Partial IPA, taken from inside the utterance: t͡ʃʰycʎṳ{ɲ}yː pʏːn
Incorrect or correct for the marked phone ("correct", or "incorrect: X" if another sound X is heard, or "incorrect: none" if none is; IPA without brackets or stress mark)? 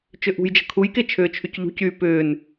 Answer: incorrect: c